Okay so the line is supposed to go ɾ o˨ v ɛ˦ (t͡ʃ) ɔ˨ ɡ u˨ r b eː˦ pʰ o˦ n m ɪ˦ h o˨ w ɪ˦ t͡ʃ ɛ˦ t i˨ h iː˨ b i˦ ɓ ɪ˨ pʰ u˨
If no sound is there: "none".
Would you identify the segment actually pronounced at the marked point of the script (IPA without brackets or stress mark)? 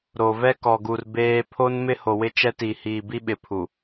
k